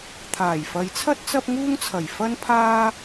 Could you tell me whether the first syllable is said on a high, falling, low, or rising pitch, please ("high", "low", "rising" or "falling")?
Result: low